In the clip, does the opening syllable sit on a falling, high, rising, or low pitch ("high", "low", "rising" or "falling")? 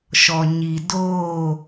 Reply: low